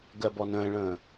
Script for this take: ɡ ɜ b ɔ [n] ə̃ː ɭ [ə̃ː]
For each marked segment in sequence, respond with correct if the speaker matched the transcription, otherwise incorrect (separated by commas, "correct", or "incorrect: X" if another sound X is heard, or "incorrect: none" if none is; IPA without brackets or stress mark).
correct, correct